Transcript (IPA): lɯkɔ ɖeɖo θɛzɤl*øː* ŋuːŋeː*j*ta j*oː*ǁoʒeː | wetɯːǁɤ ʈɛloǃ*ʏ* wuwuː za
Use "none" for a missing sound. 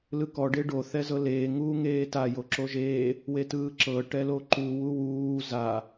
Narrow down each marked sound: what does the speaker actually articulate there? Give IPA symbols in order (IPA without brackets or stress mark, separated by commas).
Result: eː, none, o, u